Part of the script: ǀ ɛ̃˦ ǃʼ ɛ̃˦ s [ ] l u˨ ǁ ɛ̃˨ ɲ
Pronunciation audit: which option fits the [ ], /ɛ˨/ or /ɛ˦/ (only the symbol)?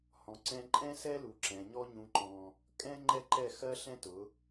ɛ˦